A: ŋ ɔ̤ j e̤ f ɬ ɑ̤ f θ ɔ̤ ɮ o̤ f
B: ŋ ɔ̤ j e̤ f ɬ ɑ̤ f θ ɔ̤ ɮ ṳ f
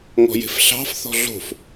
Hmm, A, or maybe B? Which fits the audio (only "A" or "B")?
A